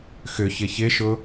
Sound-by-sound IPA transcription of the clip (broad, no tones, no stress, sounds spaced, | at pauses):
x ʏ ç ɪ ç ɪ ʃ ʊ